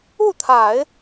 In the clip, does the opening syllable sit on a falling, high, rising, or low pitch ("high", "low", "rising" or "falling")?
falling